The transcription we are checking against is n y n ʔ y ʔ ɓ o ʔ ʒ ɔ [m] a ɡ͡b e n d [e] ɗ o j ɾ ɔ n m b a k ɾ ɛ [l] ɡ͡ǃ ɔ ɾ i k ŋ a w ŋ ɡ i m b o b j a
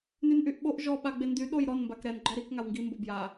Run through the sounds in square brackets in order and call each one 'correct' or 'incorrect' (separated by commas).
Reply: incorrect, incorrect, incorrect